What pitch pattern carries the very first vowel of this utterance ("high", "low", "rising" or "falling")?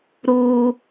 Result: high